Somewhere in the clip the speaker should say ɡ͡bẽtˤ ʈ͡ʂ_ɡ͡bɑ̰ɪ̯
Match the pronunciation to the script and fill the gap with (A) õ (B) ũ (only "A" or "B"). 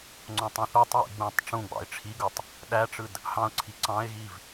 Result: B